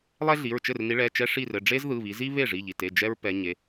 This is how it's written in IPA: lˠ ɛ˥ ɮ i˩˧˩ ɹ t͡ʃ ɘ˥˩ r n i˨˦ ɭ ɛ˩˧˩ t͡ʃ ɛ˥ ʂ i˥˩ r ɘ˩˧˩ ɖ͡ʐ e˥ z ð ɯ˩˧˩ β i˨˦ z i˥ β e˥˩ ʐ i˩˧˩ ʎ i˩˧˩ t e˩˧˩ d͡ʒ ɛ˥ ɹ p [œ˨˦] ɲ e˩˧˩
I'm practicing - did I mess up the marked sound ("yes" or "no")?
yes